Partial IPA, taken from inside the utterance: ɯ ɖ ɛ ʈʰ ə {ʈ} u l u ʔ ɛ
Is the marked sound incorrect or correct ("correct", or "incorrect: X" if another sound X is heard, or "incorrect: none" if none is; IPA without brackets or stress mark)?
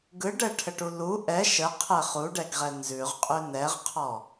correct